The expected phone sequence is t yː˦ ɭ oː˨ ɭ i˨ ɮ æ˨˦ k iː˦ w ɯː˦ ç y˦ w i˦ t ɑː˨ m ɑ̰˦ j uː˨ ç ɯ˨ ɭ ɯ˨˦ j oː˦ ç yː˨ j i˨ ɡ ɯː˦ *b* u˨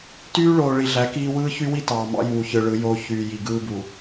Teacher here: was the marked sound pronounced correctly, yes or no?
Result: yes